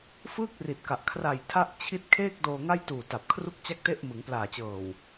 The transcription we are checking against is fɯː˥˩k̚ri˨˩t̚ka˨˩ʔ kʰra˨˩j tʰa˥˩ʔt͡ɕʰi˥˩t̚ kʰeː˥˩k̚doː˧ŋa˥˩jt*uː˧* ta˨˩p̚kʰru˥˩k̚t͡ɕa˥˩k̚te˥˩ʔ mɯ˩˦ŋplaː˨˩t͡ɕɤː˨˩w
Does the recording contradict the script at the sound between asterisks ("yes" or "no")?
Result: yes